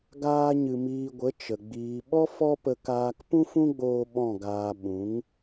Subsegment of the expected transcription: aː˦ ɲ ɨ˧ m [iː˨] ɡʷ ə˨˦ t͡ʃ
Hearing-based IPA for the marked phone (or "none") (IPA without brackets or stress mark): iː˧